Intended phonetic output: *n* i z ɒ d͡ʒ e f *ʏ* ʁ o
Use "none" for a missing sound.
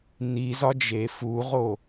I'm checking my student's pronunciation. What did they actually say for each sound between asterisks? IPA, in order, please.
n, u

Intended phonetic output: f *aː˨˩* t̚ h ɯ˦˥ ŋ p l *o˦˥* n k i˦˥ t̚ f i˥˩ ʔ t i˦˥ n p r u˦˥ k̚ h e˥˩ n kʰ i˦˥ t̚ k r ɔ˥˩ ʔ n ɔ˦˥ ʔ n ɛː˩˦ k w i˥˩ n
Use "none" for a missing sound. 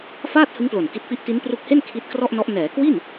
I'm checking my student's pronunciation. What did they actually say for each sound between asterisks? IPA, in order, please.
aː˥˩, o˨˩

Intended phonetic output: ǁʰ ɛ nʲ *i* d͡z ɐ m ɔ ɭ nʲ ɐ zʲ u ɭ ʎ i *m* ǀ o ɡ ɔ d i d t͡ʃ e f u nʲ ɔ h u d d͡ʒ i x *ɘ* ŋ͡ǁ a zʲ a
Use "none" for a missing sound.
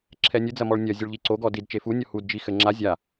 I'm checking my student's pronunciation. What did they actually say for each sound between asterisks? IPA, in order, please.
ɨ, none, ɘ

